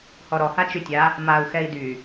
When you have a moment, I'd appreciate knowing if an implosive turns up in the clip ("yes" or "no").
no